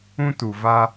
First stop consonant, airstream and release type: plain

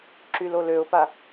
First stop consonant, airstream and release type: click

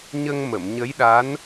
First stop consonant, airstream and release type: implosive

